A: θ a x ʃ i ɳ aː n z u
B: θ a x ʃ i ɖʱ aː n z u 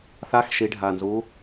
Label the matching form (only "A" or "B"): B